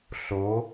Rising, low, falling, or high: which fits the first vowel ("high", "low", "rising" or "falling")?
rising